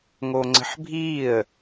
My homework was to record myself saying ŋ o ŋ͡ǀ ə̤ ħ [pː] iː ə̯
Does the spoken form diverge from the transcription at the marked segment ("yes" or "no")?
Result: yes